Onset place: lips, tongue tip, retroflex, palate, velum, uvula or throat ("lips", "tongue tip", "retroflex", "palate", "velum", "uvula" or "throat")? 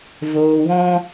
lips